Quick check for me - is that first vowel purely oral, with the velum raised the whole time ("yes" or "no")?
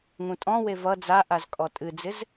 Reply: no